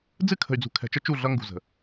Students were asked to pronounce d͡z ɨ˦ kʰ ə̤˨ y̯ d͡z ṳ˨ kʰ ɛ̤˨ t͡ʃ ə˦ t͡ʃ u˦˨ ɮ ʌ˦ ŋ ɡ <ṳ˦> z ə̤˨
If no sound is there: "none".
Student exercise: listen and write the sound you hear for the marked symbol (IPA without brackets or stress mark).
ṳ˨